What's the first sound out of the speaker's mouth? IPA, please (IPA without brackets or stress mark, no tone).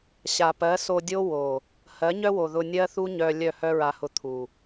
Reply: ɕ